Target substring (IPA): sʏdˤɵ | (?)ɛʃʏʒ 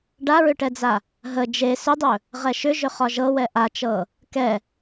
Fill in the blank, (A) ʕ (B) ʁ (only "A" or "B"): B